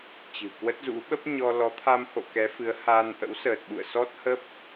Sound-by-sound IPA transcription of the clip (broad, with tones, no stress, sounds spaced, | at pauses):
t͡ɕ ɨ̤˨˩ k w ə˦˥ t̚ z ṵ˧˥ ɓ ə˦˥ p̚ ɲ ɔ˧ l ɔ˨˦ t̪ʰ a˧ m h o̰˧˨ k ɛ˨˦ f ɨ˨˦ ə̯ h aː˧ n ʔ ə̰˧˥ w s əː˨˩ t̚ ɓ ṵ˧˨ ə̯ s ɔ˦˥ t̚ h ə˦˥ p̚